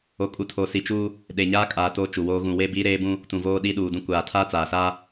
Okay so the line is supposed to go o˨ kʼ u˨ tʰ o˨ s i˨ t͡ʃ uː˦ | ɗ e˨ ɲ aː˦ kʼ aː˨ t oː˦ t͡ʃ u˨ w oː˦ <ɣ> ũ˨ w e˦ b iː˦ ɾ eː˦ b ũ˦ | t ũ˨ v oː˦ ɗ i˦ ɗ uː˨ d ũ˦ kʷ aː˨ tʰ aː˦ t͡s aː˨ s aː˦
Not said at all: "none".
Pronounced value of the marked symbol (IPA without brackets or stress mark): ɣ